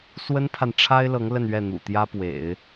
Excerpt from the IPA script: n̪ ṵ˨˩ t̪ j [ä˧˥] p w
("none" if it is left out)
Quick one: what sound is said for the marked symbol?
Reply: ä˥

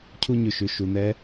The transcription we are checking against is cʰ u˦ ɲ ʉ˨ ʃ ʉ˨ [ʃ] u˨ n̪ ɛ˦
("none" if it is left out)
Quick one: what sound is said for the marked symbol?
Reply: ʃ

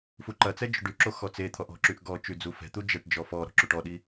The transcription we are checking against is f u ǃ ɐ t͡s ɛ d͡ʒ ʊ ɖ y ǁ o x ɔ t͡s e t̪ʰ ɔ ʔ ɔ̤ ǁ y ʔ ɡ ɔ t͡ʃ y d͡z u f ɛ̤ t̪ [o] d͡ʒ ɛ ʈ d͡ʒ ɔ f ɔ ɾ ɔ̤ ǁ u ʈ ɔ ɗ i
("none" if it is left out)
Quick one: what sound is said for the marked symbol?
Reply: u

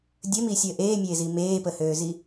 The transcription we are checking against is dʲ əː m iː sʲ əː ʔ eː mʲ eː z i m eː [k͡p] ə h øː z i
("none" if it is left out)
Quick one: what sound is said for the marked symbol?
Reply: p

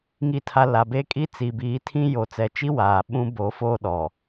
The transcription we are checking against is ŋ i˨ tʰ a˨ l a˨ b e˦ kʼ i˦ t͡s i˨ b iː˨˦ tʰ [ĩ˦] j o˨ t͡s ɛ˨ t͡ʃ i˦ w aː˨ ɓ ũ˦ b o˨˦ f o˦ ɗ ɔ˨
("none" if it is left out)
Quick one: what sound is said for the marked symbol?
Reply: ĩ˦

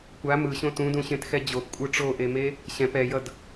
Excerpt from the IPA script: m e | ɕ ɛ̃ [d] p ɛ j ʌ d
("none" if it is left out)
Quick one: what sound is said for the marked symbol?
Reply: none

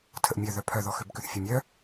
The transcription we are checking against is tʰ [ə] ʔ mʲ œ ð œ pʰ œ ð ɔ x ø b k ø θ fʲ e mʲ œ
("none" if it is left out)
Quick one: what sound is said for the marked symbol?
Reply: ə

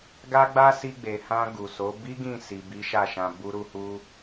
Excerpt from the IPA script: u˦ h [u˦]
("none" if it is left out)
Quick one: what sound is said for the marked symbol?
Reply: u˦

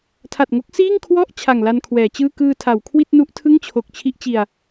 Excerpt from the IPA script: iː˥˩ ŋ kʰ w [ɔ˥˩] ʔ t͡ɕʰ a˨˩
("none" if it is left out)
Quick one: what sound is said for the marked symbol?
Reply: ɔ˥˩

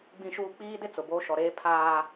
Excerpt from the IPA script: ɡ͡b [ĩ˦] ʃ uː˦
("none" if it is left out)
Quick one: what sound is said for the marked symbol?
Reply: ĩ˦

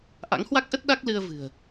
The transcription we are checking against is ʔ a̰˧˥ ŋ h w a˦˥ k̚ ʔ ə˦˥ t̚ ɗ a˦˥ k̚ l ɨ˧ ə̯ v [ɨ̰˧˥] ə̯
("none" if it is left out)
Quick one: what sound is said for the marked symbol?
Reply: ɨ̤˨˩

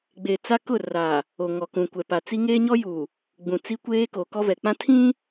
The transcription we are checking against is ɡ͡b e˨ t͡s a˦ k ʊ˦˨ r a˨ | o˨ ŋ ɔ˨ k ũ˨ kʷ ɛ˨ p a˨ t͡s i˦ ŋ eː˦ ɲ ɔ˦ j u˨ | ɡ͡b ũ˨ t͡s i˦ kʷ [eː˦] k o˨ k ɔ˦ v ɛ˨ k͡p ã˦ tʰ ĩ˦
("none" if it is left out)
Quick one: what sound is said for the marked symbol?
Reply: eː˦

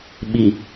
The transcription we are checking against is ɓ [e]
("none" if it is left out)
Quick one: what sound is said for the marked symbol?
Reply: i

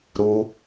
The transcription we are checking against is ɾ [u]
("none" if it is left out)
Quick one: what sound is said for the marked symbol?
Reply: u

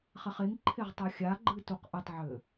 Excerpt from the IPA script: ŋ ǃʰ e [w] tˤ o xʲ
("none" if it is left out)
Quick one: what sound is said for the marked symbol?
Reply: ʁ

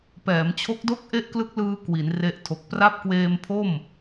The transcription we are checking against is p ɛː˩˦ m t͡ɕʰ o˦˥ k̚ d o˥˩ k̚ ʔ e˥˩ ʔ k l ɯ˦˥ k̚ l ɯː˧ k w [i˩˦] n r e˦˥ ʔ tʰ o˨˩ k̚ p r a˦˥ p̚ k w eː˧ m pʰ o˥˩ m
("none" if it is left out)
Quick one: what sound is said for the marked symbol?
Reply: i˩˦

